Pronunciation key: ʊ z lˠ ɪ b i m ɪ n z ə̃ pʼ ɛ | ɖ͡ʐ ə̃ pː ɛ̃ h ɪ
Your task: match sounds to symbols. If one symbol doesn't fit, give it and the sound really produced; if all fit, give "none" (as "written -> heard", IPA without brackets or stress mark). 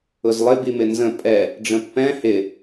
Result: none